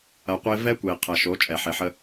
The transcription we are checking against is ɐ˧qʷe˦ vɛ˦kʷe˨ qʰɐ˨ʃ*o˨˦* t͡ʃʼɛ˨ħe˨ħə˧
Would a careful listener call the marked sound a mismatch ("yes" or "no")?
no